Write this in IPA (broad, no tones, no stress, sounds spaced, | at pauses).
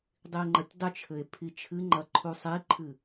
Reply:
dˤ i e̯ ŋ͡ǃ ɐ tʲ dˤ ɨ t͡ʃʰ ɘ e̯ pʰ i t͡ʃʰ ɨ ŋ͡ǃ ɐ ǃʰ u sˤ i ǃʰ ɨ